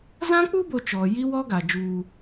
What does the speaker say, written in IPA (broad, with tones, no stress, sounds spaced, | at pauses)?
z ã˦ k͡p u˦ b o˨ t͡ʃ ɔ˨ j i˦ w ɔ˦ ɡ a˨ d͡ʒ uː˦